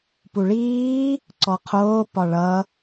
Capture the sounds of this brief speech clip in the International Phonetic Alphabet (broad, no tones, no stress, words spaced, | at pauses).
puɭiː | ǀɔqʰoːpɒ ɭʌ